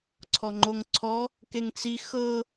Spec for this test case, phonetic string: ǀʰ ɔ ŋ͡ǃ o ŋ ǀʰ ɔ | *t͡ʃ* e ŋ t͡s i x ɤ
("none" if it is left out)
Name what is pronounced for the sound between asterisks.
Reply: k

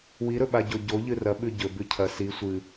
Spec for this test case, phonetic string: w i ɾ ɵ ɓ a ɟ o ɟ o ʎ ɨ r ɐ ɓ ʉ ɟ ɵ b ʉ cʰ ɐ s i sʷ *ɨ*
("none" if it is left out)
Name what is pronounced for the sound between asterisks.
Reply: ɨ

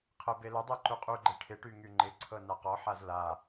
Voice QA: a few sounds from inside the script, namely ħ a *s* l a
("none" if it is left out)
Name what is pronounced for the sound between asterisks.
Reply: z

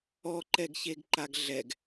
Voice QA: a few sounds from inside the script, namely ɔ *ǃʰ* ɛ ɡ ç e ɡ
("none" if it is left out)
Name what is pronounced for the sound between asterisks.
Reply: ǃ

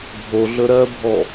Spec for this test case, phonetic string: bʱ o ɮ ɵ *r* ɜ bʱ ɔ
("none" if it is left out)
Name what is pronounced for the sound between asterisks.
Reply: ɾ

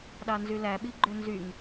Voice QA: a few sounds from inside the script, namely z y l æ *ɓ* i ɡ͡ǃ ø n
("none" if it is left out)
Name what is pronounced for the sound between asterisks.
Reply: ɓ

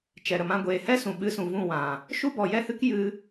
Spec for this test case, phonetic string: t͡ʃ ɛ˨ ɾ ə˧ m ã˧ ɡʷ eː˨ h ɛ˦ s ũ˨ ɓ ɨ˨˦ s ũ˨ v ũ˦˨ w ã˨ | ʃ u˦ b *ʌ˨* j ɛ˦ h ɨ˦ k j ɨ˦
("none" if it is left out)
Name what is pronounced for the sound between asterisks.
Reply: ɔ˨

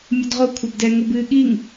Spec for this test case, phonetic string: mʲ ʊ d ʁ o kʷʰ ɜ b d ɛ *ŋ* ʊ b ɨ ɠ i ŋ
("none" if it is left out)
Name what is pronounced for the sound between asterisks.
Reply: ŋ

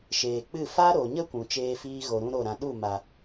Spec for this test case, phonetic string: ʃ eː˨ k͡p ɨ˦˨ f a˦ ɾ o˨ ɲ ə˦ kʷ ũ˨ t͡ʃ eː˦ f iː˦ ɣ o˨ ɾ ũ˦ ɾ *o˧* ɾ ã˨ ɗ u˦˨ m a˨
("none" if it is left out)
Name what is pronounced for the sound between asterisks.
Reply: o˦˨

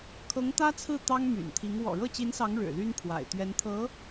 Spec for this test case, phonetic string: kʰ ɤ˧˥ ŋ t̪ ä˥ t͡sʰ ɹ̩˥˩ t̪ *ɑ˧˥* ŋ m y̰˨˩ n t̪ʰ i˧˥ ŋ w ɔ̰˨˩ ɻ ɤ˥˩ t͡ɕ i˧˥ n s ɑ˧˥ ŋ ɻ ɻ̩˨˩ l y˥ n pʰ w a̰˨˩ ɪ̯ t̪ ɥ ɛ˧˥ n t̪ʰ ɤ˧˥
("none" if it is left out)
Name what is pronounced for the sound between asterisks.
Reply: ɑ˥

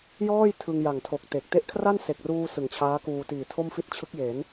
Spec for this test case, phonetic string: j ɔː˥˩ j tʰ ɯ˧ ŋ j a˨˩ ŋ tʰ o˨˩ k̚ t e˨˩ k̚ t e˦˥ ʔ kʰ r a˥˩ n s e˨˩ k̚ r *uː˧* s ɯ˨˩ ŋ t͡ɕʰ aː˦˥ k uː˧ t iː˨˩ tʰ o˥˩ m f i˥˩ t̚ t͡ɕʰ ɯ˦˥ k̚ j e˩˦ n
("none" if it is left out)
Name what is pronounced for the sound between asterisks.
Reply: uː˧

